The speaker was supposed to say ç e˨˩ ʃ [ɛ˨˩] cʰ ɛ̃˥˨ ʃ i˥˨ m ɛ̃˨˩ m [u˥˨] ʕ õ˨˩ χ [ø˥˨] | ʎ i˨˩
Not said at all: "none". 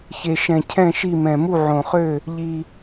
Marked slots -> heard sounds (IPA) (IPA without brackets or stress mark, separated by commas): ɛ̃˨˩, u˥˨, ø˥˨